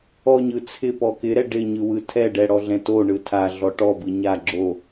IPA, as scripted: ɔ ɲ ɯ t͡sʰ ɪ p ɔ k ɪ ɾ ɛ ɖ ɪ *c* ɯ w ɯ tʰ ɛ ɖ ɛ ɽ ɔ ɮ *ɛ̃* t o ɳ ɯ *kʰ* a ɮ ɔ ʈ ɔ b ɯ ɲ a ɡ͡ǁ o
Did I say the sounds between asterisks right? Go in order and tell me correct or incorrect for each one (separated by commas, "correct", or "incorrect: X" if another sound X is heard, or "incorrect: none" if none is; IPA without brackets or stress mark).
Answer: incorrect: ɲ, correct, incorrect: tʰ